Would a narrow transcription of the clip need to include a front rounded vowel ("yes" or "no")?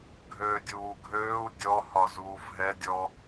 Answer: yes